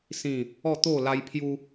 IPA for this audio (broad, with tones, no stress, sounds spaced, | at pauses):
s ĩ˥˧ | ɔ˥˧ t̪ o˥˧ l a˦ j pʰ j u˦